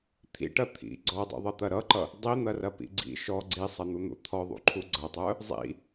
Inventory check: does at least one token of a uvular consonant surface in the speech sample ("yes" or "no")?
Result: no